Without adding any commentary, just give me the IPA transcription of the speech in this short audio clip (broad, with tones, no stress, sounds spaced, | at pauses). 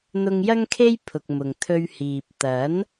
n̪ ʊ˧ ŋ j ɐ˥ ŋ kʰ e˥ j pʰ ʊ˨ k̚ m ʊ˨ ŋ t̪ʰ ɵ˧ ɥ h iː˨ p̚ t̪ ɐ˨˥ n